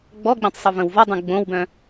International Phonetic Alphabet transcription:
ɡ͡b ɔ ɡ͡b ĩ tˤ sˤ u v ə̃ w v ɔ dˤ ũ ɡ͡b õ w b œ̃

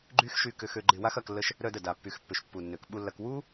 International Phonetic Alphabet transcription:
ɡ͡ǃ y˦ x ʃ y˧ k ʏ˧ x ø˧ ɡ͡ǃ ɪ˧ w a˦ x ɐ˧ k lː ə˧ ʃ | ɾ œ˧ d ə˨ d a˨ pː y˨ x pː ʏ˨ ʃ pː u˨ nː ø˨ k ɓ u˧ lː ɐ˧ k w u˦

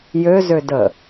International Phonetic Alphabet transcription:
j ø z ø d ə

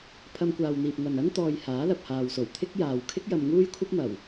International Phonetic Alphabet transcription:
pʰ ɐ˧ m kʷ aː˨ w n̪ iː˨ p̚ ŋ ɐ˨ n ɐ˥ n t̪ ɔː˧ j h aː˨˥ l ɐ˨ p̚ h aː˨ w s o˨˩ w t̪ʰ ɪ˥ k̚ j aː˨ w kʰ ɪ˥ k̚ j ɐ˧ m ŋ uː˥ j kʷʰ ɐ˥ p̚ m ɐ˨˩ w

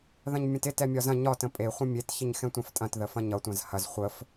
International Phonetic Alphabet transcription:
ð ɐ̃ ɲ mʲ ɐ̃ t ɪ t ɛ mʲ ɒ z ɐ̃ ɲ ɒ t ə̃ pʼ e χʷ ə̃ mʲ e t ç ɪ ɲ x ɛ̃ tʷ ɛ̃ f tʼ ɐ̃ t ð ə f ɐ̃ ɲ ʌ tʷ ɐ̃ z h ɐ z χʷ ə f

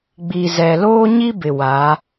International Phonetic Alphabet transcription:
ɡ͡b i˨ z ɛ˨ l oː˦ ɲ i˦ b ɪ˨ w a˨˦

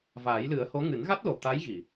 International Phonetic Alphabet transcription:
v aː˨˩˦ j l ɨ˨˩˦ ə̯ h o˧˥ ŋ ɨ˨˩˦ n ɣ a˦˥ t̚ l o˨˩ t̪ a˧˥ j ɣ i˨˩˨

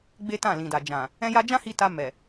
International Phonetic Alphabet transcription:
ɡ͡b e˦ t ã˦˨ l ĩ˨ d a˨ d͡ʒ ã˨ | ɛ̃˦ j a˦ d͡ʒ ã˦ h i˧ t a˧ m ɛ˨

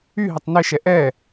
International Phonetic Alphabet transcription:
y ɦ ɘ tˤ n ɘ ʃ ɛ ʔ ɛ

